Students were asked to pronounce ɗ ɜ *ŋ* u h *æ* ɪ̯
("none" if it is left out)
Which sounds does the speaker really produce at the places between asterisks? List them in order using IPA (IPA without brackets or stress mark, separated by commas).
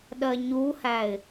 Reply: ɲ, æ